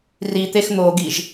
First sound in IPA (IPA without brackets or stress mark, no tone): r